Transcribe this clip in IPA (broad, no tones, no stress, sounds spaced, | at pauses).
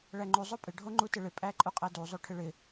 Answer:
ɭ æ ŋ͡ǃ u zˤ o pʼ ɪ ɖʱ o ŋ͡ǃ u t ɪ ɭ ɪ pʼ æ ǃʼ u qʼ æ d u zˤ o ʈʰ ɪ ɭ ɪ